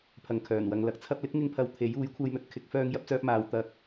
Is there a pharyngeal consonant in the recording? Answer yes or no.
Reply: no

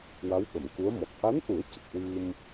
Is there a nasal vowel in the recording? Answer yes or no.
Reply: no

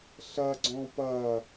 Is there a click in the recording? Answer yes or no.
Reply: yes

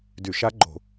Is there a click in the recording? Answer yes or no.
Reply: yes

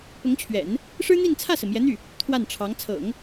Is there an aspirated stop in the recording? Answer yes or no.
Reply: yes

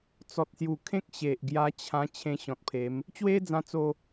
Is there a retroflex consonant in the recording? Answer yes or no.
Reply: no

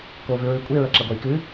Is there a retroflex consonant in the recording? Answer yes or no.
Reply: no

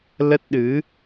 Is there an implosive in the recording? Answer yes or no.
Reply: yes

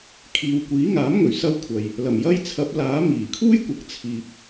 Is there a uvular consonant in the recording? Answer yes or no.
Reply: no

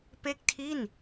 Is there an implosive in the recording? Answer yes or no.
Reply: no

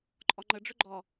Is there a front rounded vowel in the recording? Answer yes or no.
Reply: yes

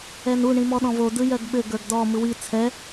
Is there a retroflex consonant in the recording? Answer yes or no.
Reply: yes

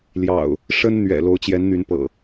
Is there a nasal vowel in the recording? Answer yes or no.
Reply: no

